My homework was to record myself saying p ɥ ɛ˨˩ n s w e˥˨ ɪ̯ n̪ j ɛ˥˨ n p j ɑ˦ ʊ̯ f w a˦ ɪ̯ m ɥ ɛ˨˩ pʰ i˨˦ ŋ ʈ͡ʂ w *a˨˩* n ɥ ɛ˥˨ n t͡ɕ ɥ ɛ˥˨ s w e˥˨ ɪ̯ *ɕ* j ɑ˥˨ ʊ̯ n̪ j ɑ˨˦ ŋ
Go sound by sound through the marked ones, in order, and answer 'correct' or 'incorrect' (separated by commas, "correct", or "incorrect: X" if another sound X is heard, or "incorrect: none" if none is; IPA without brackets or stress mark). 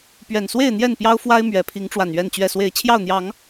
correct, incorrect: t͡ɕʰ